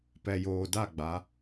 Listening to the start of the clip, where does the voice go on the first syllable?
low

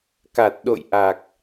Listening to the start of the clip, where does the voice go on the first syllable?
low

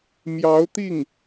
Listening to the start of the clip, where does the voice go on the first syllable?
rising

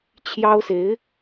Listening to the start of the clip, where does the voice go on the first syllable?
high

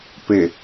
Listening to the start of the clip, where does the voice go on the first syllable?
low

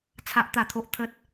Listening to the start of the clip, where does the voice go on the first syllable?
high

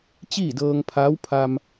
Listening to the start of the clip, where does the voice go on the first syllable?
falling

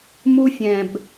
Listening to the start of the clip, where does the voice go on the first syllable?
high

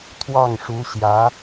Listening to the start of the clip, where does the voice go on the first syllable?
falling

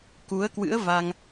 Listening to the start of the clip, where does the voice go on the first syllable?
rising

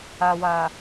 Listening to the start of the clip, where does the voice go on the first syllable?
low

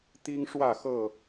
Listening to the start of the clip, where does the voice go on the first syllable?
high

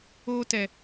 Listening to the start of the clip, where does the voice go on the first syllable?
high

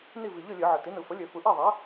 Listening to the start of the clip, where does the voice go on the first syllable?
falling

